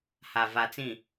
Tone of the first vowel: low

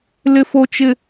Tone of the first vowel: high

